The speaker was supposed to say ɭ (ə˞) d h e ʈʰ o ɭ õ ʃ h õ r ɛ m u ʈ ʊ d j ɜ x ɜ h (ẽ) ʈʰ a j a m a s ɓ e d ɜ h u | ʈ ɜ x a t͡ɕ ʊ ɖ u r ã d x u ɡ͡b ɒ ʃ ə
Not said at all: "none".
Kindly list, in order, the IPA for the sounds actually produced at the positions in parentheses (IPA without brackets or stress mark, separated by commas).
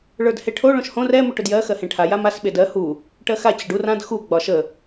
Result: ə˞, ẽ